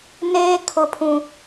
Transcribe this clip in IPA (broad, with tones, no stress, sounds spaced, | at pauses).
n eː˨ kʰ ʊ˨ pʰ ũ˨